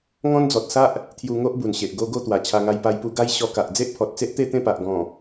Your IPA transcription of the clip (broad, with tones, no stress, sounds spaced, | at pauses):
ŋ ɔ̃˦ n d͡z ɔ˨ t̚ s a˦ ʔ | t̪ʰ j u˧ ŋ o˦ ʔ b u˨˩ n ɕ e˨ ʔ ɡ o˦ ɡ o˥˧ t̪ w a˨˩ t͡ɕʰ a˧ ŋ a˧ j p a˧ j p u˧ ɡ a˦ j ɕ ɔ˧ k a˨ ʔ d͡z e˦ ʔ pʰ ɔ˨ t̚ t͡s e˦ ʔ t̪ e˥˧ t̪ ẽ˥˧ p a˨ ʔ ɡ ɔ̃˨˩